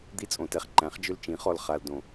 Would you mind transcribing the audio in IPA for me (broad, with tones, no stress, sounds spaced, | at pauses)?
d̪ i˦ t͡sʼ õ˨ t ɛ˦ χ ǃ æ̃˩˥ χ d͡ʒ ʏ˦ l t͡ʃ ĩ˩˥ χ ɔ˨ l χ a˨ l d õ˨